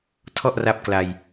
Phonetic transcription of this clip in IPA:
tʰɔ˥˩ʔra˦˥p̚ kla˧j

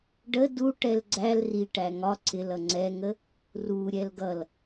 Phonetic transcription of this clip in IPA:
ɖə duʈɛl ɡ͡ǀæl ri ʈæŋɒ ǀɪlʌ ŋ͡ǀɛŋə | ru ɾʲɛlɡʌl

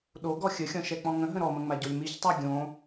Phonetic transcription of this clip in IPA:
ɗo ɡɔxʲəxʲɔ̃ ʃɛk͡pɔ̃ŋə̃ɦə̃ ɾɔmə̃ ŋ͡maɟolʲmiçtˤa ɡʲõ

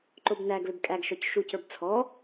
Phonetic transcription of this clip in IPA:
ǃobnæɡ lʏbkʼæɡʃɔc ʃucə˞b t͡sʰɔ

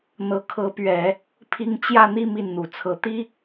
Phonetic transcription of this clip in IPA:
n̪ɤ˧˥kʰɤ˧˥pɥɛ˨˩˦ | pʰi˥ŋ t͡ɕjä˥˧n̪i˥˧ mi˥˩nn̪u˨˩t͡sʰɤ˧˥ t̪i˥

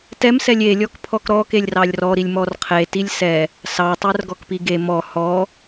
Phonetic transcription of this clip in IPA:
tɛm sɛlʲe lʲɔkpʰɔkɾɔ kelʲrɑlʲrɔ ɾilʲmɔrqʰe tilʲsɛ | sɑ tˤɛrɡɔkpiɡe mɔ hɔ

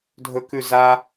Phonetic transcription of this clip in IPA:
dʱɵkʉ za

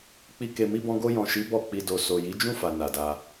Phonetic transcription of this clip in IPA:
k͡pi˧ ke˨mi˧bɔ̃˧ ɡo˧jɔ̃˨ʃi˨˦ bɔ˦˨k͡pi˧ do˨ so˨ji˨˦d͡ʒũ˦˨fa˨ na˨da˧

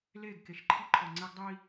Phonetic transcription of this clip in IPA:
leː˦˨ɡke˨ʃǃʰi˦ǃʰɔ˨ ŋ͡ǀɛ˦ɡdˤiː˦

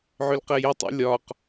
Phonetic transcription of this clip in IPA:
ʕʏlqɛjətˤḭ lʲɒq

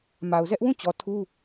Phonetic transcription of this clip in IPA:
ma˨ʊ̯zɛ˦ʔwũ˦˨t͡ɕɔ˨ tʰu˦

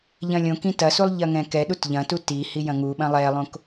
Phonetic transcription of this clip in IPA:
ʎɐ̃lʲõkĩ tɐsulˠ ʎɐŋɛ̃kɛɗut ʎɐ̃tu ti hijɐ̃ŋuɓɐ̃ lˠɛlˠõk

